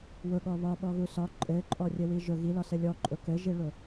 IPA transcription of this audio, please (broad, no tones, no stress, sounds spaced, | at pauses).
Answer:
w ʊ ɠ ɔ β ɒ ɓ ɔ ɣ u s ɒ ǃʼ ɘ ǃʼ ɔ rʲ ɘ w i ʒ ʊ ɣ i l ɒ s ɘ lʲ ɔ ǃʼ ʊ k ɘ ʒ i ɭ ʊ